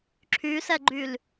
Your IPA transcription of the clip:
ǁʰysɛɡ͡ǃyl

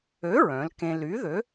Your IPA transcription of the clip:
ø˨˥ɹœ̃˩˧l kẽ˧ ly˨˥ðø˨˥

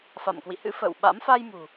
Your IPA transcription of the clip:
fa̰˧˨mkwḭ˧˨hɨ̰˧˥fə̰ː˧˨w ɓa̰˧˥m fa˧jmṳ˨˩

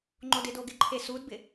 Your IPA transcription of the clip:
ŋ͡ǃodɪdo ɡɪǃʰesudbɪ

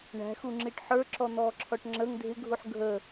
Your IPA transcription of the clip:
ɳæ̤xuŋ͡ǁiʈ ħə˞ǁɔn̪ɔːǁʰɔʈ ŋ͡ǁəŋ dʱɪɡʱuħ ɡʱə

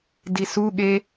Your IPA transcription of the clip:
disuɠe

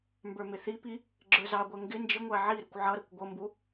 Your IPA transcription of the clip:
mbə˞mɪθipi | ɡ͡ǁə˞zɑɡʷɛ ŋɡɪ nd͡ʒɪŋʷæ ʕiɾəkʷ ʕʌɾʌkʷ ɡʷʌmbu

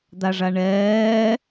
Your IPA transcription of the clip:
d̪aʐaɳɛː

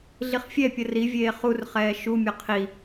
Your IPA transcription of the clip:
ɮiχfʲɛpʲə rivʲeː χurχɛː ʃumʲə qʰi

